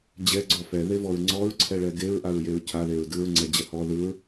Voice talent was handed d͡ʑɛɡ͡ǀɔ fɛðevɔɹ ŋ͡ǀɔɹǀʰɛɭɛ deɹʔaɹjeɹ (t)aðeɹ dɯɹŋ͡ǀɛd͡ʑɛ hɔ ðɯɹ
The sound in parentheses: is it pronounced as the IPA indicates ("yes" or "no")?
no